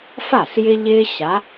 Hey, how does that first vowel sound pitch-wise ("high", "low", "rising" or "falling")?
falling